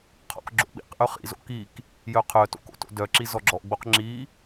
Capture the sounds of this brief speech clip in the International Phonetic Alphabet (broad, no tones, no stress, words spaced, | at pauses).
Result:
qʰɔ̰kɡ͡ǁo̰ɓḭqʔœ χḭzo̰k ik | jœqʰœto̰k o̰to̰dœǁi zɔɡ͡ǁɔʔɡ͡boq ŋ͡ǁi